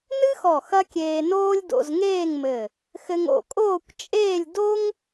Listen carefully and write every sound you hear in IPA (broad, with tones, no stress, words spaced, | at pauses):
nɨ˥xɔ˧˩ xɐ˥kʲeː˧noː˥lʲ do̰˧zŋeː˥˧ŋmɘ˧˩ | xɘ˧ŋo̰˧˩kʼoː˥˧kʷt͡ʃʼeː˥˧lʲ do˥ŋ